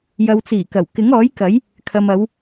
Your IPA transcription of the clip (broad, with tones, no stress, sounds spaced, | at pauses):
j ɐ˨ w t͡s iː˨˩ k ɐ˨˩ w k ɪ˨˥ ŋ ɔː˨˥ j k ɐ˨˥ j | kʰ ɐ˨ m ɐ˨˧ w